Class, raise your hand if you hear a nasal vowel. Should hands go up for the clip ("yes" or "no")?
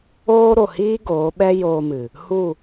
no